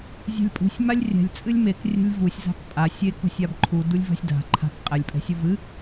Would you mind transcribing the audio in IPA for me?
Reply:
zʲ ɛ̤ lʲ pʼ ṳ sʲ m a lʲ rʲ ɛ̤ lʲ t͡sʼ ɨ lʲ m e k rʲ ɛ̤ lʲ v u sʲ z a̤ k pʼ a sʲ e k o̤ sʲ a b ǃʰ u d u lʲ v a̤ sʲ d a̤ ǃʰ a̤ k qʼ ɛ lʲ pʼ ɛ̤ sʲ u v ɨ

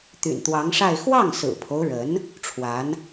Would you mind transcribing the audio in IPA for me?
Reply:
t̪ y̰˨˩ n t̪ w ɑ˧˥ ŋ ʂ a˥˧ ɪ̯ x w ɑ˥˩ ŋ s ɹ̩˨˩ pʰ o˦ ʊ̯ ɻ ə˧˥ n | ʈ͡ʂʰ w a˧˥ n

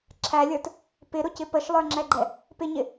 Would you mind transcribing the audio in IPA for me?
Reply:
ǁʰ æ lʲ ə˞ t | p ɪ ɾ ʊ c ɪ p ə ʃ lˠ ə˞ ŋ͡ǁ ɛ ɡ͡ǃ ɛ | p ɪ ɲ ɪ

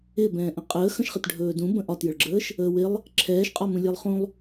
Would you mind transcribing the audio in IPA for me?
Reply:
ɪ b ɛ̃ː ʔ ə̃ qʼ əː x ə̃ ʃ χ ɪ t ɖʱ ɵː d ũ b ə̃ ʔ ɒ t j ə ɭ ɡ͡ǁ əː ʃ | əː w ɪ lˠ | ǁʰ ɛː ʃ qʼ ɒ m ũ lʲ ɛ lˠ χ ũ lˠ

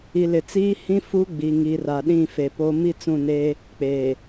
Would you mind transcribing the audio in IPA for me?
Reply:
i˨ l ɪ˨ t͡s iː˦ h ĩ˦ f u˦ ɡ͡b i˨ ŋ i˨ r a˨ ɗ ĩ˦˨ f e˨ p o˦ m i˦ t͡s ũ˦˨ n eː˦ | k͡p eː˨

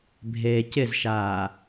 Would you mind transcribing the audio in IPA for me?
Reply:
bʱ eː c ɪ z ʃ aː

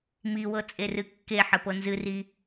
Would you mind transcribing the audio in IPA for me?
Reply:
m i w ɤ t͡sʼ e r ɨ kː e ħ ə p ɤ n z ɨ r i

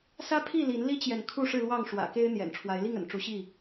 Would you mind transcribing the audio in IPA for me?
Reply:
s ä˦ pʰ i˥˨ l i˨˦ n l i˦ t͡ɕ j ɛ˨ n kʰ u˥˨ ʂ ɻ̩˥˨ l w ɑ˥˨ ŋ ʂ w ä̰˨˩ k e˦ ɪ̯ n̪ j ɛ̰˨˩ n ʈ͡ʂʰ w a˨˦ ɪ̯ l i˥˨ ŋ ə̰˨˩ n ʈ͡ʂ u˨˦ ɕ i˥˨

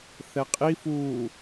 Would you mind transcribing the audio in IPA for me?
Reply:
θ ɛ qʼ i f uː

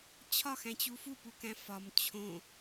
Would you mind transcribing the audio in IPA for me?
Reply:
t͡ɕʰ ɒ x æ̃ t͡ɕ u f u p u k æ̃ f ɒ m t͡ɕʰ õ

